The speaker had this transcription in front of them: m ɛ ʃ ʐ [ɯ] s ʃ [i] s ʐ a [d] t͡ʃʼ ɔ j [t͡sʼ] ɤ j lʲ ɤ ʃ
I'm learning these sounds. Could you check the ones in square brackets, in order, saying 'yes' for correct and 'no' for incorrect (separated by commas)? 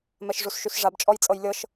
no, no, no, yes